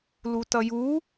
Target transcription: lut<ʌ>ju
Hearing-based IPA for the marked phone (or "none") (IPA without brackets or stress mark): ʌ